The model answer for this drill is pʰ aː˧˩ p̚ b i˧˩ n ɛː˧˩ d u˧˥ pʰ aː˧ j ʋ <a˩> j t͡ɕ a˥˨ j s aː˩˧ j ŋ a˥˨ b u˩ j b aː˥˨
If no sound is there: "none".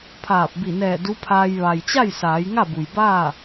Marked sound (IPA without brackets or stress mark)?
a˩